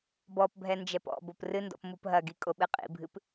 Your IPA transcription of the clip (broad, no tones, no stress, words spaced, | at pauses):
bɔpbʱɛ nd͡ʒɛpɔ̰bop rɨndɔ̰p mupɦɐɡi kʼoɓɨqʼḭbʱɨp